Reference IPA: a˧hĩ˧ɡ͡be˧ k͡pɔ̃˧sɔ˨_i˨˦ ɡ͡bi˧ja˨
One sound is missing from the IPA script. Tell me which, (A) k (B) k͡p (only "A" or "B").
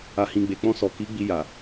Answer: A